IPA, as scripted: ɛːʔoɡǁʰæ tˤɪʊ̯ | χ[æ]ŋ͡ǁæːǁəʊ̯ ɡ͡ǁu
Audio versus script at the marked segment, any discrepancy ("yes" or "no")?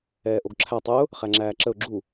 no